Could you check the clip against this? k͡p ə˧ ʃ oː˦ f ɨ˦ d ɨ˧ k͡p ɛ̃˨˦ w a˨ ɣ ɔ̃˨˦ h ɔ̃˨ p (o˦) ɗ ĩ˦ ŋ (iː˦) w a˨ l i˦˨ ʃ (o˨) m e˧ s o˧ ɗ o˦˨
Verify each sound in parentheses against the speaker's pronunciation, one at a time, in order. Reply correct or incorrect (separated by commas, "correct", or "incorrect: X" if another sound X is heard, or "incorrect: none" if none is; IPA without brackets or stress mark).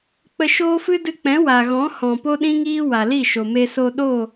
correct, correct, correct